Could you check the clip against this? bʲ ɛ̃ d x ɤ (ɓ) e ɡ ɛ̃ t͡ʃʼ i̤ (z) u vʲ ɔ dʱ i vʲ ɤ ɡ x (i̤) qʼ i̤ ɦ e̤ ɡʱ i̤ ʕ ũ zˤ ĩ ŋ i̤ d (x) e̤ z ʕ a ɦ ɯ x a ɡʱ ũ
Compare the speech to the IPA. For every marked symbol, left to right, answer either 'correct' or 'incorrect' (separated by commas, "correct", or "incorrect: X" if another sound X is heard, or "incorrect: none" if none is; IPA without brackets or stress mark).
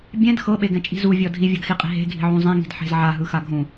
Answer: correct, correct, incorrect: i, incorrect: ħ